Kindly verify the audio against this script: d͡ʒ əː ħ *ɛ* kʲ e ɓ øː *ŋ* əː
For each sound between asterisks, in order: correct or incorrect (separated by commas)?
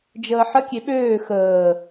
incorrect, incorrect